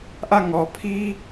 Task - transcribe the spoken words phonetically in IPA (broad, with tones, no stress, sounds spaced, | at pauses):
ʔ ä˦˨ ŋ ɔ˨ pʰ i˦